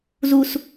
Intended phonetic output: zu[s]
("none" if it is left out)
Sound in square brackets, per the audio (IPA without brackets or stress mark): s